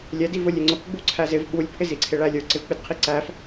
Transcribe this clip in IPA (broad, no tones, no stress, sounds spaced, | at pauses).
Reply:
lʲ ɛ d i v ʊ lʲ ɪ ŋ͡ǀ ʊ k ɡ͡b u ǀʰ æ z ɪ v ɓ u lʲ pʰ ɪ z i ǀʰ ɪ ɭ æ lʲ ə˞ ǀ ɪ v k͡p ɪ d qʰ i ǀ æ f